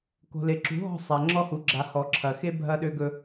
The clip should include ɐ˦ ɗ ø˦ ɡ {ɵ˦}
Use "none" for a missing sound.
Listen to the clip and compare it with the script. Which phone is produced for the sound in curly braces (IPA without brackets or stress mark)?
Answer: ɵ˦